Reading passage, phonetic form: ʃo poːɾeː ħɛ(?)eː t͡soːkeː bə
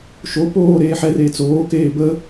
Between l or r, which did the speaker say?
r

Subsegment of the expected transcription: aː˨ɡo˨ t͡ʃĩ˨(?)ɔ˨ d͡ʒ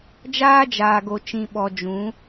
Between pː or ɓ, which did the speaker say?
ɓ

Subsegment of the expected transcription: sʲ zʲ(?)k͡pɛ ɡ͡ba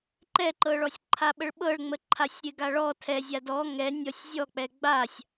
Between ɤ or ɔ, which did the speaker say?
ɔ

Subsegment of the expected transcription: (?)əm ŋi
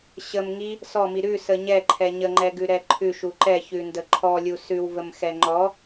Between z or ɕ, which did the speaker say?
ɕ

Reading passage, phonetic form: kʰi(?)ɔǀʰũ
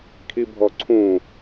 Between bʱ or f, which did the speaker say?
bʱ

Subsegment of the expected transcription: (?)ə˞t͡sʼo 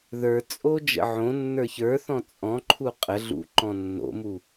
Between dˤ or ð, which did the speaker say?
ð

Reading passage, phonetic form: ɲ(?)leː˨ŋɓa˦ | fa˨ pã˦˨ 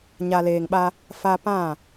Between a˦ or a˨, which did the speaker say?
a˨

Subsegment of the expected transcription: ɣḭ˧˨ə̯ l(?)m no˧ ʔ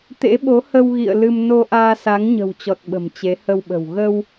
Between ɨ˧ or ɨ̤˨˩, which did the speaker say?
ɨ˧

